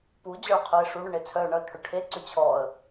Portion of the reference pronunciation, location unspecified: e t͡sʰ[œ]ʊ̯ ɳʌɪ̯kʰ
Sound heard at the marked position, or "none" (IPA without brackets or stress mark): œ